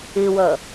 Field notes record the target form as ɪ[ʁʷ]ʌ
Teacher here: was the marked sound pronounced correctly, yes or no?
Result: no